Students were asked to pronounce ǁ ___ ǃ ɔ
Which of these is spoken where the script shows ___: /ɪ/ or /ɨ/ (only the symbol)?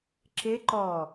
ɪ